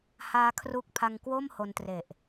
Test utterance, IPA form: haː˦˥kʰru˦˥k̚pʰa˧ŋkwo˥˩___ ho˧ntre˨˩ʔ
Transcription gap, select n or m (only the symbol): m